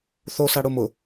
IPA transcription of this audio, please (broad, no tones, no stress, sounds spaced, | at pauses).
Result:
θ o s a ɽ ʊ m ʊ